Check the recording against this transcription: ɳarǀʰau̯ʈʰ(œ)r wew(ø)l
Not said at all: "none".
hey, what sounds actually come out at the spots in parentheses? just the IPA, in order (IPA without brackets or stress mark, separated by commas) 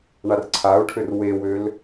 ø, ø